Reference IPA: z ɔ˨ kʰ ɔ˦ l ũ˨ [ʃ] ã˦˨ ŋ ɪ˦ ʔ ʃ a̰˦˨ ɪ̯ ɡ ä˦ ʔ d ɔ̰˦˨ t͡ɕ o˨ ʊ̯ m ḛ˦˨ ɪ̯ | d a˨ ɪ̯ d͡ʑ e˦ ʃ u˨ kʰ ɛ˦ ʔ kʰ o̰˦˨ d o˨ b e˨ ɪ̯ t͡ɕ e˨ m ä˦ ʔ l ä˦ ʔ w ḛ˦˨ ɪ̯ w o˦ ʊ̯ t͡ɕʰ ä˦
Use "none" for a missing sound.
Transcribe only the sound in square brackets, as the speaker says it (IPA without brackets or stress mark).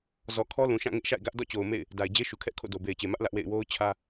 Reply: ʃ